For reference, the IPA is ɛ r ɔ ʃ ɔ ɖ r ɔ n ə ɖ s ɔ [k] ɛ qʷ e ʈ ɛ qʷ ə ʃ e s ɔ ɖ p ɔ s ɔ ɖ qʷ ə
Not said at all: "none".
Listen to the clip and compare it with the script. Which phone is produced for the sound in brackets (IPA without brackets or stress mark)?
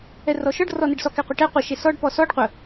k